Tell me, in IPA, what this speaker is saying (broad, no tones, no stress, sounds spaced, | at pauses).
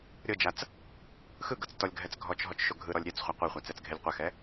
ɾʲ ɤ d͡ʒ a t͡s | x ɯ ɡ ɤ t͡s t ɔ lʲ ɡʱ ɛ t͡s ɡʱ ɔ t͡ʃ ɦ ɔ t͡ʃ ʃ o ɡʱ ɯ ɾ ɔ lʲ ɾʲ ɛ t͡s χʷ a qʷ ɛ χʷ a t͡s ɛ t͡s ɡʱ e lʲ qʷ ɛ x ɛ